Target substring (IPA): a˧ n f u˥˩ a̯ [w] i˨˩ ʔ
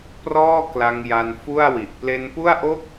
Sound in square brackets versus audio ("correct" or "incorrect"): correct